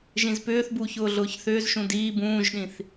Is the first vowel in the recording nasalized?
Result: yes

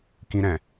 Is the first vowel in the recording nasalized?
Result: yes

